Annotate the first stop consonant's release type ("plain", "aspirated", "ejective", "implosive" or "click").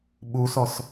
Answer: implosive